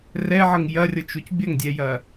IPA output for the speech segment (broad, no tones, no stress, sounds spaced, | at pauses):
r ɛ ʕ ɤ ŋ j ɐ rʲ ɤ t͡ʃ u c bʲ ɐ ŋ dʲ ɛ j ɐ